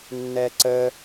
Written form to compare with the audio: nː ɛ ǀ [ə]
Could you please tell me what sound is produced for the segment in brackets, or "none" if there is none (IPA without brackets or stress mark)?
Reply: ə